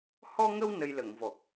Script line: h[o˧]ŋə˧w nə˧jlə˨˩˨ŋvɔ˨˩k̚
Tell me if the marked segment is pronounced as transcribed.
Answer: no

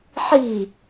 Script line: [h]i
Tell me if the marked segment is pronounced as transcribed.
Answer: no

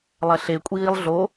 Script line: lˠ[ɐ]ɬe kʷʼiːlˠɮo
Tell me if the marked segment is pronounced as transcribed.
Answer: yes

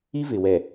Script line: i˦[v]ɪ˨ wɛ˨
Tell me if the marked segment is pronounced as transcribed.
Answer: yes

